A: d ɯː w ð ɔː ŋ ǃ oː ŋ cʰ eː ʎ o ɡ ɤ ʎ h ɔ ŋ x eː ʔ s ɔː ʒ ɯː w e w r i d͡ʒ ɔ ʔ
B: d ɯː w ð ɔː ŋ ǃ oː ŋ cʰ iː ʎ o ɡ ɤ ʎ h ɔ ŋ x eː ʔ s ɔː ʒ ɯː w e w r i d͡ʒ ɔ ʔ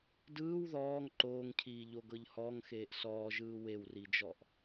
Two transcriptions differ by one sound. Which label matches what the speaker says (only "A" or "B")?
B